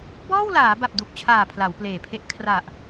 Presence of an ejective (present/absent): absent